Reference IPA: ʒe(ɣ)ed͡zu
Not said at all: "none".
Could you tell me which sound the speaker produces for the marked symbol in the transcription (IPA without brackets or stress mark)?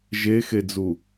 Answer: x